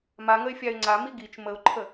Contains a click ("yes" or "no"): yes